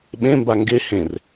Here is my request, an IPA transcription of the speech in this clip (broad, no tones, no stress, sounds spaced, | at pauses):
ɓ ẽ m b a ŋ ɡ e h ẽ r